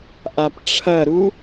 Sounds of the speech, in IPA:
ʔ a p ʈ͡ʂʰ ɐ ɾ u

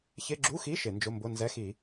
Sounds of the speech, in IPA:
ç ɪ˧˥˧ ɡ͡ǁ u˧˥˧ x i˧˥˧ ʃ ɪ˧˩˧ n d͡ʒ ʊ˧˥˧ m b ʊ˧˥˧ n z ɛ˧˥˧ x i˧˩˧

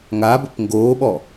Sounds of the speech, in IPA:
ŋ a b ə p ŋ ɡ o ɓ ɔ

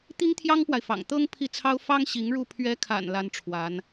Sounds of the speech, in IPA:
t̪ i˥ ŋ t̪ʰ j ɑ˥ ŋ p w a˨ ɪ̯ f ɑ̰˨˩ ŋ t̪ ɤ˥ ŋ pʰ i˥˩ t͡sʰ ɑ˥ ʊ̯ f ɑ˥ ŋ ɕ i˧˥ ŋ ɻ u˥˩ pʰ ɥ ɛ˧˥ kʰ a̰˨˩ n l a˥ n ʈ͡ʂʰ w a˧˥ n

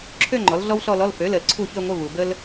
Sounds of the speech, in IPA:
ǁʰ ø˥˧ ŋ͡ǃ ɔ˩˥ l ɮ ɔ˥ w ɬ ɔ˥˧ l ɔ˧˥˧ l f ø˩˥ l ə˨ l ǀʰ u˥˩ ç ø˥˧ ŋʷ ə˧˥˧ v u˨ b ə˥ l

